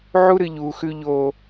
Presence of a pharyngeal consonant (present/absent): present